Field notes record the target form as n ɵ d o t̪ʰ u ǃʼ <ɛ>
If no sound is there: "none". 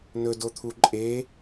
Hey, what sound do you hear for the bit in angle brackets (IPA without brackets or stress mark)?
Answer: e